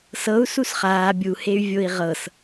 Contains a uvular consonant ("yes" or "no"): yes